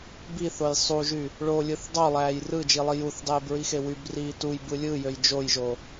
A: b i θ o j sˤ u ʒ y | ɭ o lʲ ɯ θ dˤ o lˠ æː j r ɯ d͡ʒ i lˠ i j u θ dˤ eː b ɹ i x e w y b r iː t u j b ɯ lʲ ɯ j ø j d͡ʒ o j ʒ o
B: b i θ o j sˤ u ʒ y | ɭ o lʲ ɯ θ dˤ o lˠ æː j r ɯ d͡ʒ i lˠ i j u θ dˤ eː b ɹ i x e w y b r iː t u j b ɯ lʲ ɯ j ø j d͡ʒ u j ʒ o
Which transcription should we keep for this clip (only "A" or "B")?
A